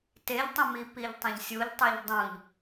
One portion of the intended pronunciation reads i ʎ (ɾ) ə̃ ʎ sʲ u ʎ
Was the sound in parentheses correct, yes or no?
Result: no